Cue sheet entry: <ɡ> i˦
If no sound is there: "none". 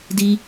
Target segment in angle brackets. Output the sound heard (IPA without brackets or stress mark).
d